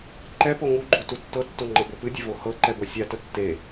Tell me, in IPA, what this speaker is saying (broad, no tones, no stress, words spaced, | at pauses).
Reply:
ǃɛ poŋuɡ͡ǃu tutːɤtːo ŋ͡ǃɤbopɨdʲe vohɤǃɛ bɤsʲatə tːe